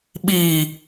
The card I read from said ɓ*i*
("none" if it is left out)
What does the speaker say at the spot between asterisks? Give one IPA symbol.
i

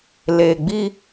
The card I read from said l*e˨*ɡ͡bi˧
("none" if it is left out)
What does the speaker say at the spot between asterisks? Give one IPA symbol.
e˨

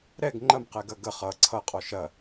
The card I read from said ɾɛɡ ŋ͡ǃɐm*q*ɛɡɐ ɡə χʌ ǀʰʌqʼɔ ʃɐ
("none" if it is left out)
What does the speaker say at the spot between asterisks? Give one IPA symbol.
q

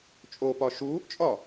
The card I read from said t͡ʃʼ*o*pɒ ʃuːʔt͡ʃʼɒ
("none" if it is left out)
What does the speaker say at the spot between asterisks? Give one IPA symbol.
o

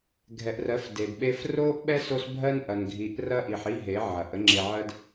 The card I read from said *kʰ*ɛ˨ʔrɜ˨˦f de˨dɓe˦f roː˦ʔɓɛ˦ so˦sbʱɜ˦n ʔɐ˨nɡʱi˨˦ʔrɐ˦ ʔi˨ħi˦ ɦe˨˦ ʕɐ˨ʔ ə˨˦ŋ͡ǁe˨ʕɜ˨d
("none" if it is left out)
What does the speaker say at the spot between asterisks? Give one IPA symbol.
ɡʱ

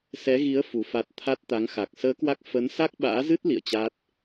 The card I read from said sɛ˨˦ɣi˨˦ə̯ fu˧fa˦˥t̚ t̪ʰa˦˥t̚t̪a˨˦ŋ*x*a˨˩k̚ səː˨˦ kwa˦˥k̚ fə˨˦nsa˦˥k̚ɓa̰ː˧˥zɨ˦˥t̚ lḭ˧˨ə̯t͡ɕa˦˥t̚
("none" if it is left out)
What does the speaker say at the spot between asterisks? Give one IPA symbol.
x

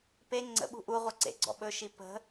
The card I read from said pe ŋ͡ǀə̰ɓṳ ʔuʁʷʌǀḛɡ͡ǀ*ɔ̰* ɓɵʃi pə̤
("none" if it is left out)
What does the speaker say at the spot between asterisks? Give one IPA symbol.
ɔ̰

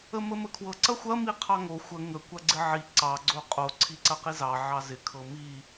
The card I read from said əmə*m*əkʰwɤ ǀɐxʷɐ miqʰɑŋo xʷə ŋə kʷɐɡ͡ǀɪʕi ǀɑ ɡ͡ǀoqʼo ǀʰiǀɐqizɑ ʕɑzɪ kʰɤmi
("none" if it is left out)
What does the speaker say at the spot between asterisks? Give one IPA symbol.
m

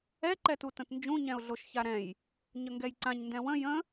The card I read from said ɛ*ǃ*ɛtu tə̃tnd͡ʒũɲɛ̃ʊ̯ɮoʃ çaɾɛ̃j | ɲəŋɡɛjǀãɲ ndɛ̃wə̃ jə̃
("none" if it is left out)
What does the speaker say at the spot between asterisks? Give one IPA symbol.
ǃ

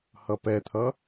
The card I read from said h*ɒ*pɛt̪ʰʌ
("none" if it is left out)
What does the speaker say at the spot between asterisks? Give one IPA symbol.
ʌ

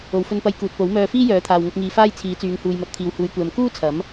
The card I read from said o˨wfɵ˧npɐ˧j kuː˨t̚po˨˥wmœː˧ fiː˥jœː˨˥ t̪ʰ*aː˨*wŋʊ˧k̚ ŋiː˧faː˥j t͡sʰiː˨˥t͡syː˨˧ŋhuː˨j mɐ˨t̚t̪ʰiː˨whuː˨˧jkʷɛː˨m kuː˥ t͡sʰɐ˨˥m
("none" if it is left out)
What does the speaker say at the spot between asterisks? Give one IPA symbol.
aː˨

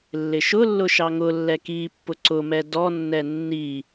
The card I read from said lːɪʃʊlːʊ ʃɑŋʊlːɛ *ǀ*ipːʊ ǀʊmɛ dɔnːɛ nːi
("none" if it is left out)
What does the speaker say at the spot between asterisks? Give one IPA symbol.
k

